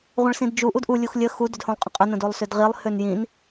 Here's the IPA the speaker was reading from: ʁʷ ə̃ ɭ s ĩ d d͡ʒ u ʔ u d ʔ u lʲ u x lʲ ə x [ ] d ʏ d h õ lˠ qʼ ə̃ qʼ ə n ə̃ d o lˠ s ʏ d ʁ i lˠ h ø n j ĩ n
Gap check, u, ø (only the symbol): u